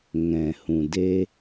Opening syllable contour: low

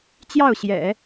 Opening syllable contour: falling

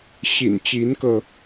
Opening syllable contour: low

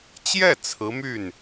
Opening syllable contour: falling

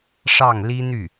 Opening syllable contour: falling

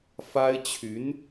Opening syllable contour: high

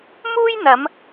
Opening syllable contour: high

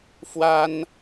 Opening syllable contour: high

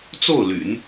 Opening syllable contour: falling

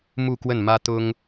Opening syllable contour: falling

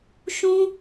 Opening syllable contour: high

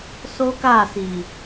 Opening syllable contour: high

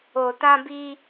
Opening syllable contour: low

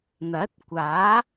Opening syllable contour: rising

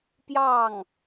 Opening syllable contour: falling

